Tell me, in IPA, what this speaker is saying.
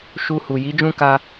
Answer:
ʃu˧hu˨ ji˨˦ d͡ʒũ˦ka˧

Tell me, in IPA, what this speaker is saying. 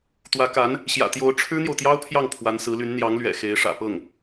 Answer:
t̪wä˧˥ka˧˥n | ɕjä̰˨˩t̪jo˧˥ʊ̯ ʈ͡ʂʰɻ̩˥n̪jo˨ʊ̯t̪jɑ˥ʊ̯pʰjɑ˥˩ŋ pʰwa˧˥nsɹ̩˧˥ly˧˥n n̪jɑ˧˥ŋlɥɛ̰˨˩ xe˧˥ɪ̯ʂä̰˨˩ pɤ˥˩ŋ

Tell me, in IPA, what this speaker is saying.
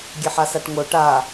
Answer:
ɡʲeħasaʈŋo ʈa

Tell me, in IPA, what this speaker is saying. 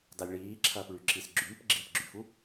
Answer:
dalʲɭiːǁʰɐːp ɭyǁisɡ͡ǁyːp ɡ͡ǁipɡ͡ǁyfu

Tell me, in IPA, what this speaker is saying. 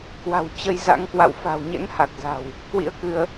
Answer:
kwa̤˨˩w t͡ɕə˧jza̰˧˥ŋkwa̰˧˨w fa̤˨˩wɲɛ̰˧˥ŋha˨˩k̚za̤˨˩w | kwḭ˧˥ə̯kɨ˧ə̯

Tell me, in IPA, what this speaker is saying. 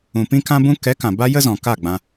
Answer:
ũ˨ pĩ˦kã˦bũ˦ kɛ˨˦ kã˨ba˦ jə˦zɔ̃˨ ka˦˨ɡ͡bã˧

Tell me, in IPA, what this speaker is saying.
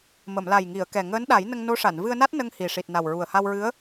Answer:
mə˨˩˨mla˨˩jŋi˨˩˨ə̯kɛ˨˩ ŋəː˧˥nɗa˨˩˦j nə˧ŋ no˧˥ʂa˨˩˨n vɨ˧ə̯na˦˥t̚ nə˧ŋ hi˨˩ʂi˨˩t̚ na˨˩wɹu˨˩ə̯ha˧wɹɨ˧˥ə̯

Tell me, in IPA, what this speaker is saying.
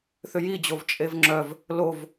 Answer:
θʏjid͡ʑov t͡ʃʼevŋ͡ǁœv | lov

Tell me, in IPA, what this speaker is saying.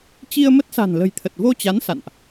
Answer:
t͡ɕi˧ə̯mə˦˥t̚sa̤˨˩n lə̤˨˩jt̪ʰə˨˩t̚vo˧t͡ɕa˨˦n sa̰˧˨nʔ

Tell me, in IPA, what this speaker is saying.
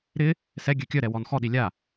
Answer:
ɾɪ | sɛ ɡʲøkʲœɾɛ wɔnxɔɗi lʲa

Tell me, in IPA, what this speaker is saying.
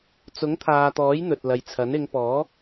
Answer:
t͡sʊ˨˥ŋt̪ʰaː˨t̪ɔː˨˥j n̪ɵ˨t̚lɐ˨jt͡sʰɐ˨˥n ɪ˨˧ŋpɔː˨˥

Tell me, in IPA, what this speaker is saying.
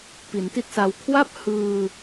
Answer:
pi˩˦nti˥˩t̚sa˧w kʰwa˥˩p̚hɯː˧

